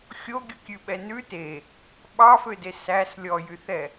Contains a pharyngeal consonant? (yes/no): no